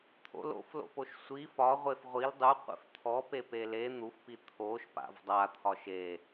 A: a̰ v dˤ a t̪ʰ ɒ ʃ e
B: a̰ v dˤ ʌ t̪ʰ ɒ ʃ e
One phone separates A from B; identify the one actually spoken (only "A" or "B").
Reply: A